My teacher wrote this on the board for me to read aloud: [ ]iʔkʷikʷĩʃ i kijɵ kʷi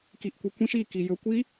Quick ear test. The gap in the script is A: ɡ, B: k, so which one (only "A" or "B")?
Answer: B